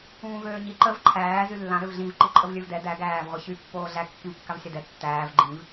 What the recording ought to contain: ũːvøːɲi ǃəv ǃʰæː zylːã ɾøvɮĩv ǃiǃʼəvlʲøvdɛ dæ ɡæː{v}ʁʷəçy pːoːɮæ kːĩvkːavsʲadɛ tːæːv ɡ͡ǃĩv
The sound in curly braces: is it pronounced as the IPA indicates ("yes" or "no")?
yes